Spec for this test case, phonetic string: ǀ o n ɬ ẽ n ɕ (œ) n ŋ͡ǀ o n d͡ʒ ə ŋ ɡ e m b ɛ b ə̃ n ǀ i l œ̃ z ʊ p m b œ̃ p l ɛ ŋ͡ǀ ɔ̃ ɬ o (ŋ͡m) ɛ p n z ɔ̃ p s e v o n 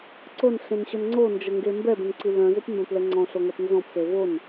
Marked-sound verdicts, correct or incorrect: correct, incorrect: ŋ

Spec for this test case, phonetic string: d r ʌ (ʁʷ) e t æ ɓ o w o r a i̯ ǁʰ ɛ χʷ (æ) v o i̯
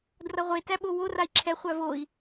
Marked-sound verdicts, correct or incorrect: correct, correct

